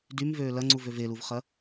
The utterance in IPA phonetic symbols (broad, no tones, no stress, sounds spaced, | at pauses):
d y m v øː l ɐ ŋ͡ǀ u v ø v e l u v χ ɐ